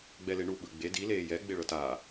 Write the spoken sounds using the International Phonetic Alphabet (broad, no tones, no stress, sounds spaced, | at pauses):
ɡ͡b ɛ l e ɳ u ɓ ɯ ɡ͡b e d i l eː j ɛ ɡ͡b e ɭ ɤ t aː